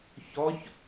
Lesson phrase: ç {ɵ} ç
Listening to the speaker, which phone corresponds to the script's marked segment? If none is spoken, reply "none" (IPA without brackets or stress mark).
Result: ɔ